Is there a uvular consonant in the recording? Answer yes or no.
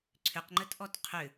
yes